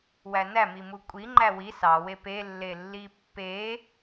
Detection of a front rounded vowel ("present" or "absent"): absent